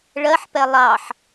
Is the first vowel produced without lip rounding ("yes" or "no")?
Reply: yes